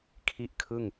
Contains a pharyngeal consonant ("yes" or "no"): no